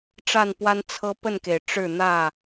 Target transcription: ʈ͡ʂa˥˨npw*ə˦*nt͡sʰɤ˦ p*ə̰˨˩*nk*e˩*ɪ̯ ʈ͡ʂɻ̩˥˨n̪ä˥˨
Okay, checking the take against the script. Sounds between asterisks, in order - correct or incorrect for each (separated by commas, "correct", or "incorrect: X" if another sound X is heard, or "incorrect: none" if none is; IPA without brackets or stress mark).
incorrect: a˦, incorrect: ə˥˨, correct